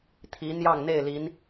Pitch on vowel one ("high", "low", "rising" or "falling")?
rising